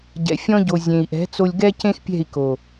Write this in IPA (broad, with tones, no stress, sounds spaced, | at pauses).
ɟ ɛ̰˨ fʲ ɔ̃˧ ɟ o˨ zʲ ẽ˨ i̯ ʔ ɛ̤˨˦ t͡s o˧ lʲ ɡ ɛ˦ c ẽ˦ x pʲ ɛ̤˦˨ i̯ k o˨